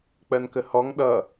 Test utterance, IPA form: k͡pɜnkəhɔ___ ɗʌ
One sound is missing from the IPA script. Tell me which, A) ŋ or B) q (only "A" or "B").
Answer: A